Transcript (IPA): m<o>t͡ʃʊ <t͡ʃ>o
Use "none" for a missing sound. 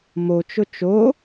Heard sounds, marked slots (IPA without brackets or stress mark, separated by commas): o, t͡ʃ